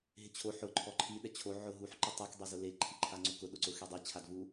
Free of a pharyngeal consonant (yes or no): no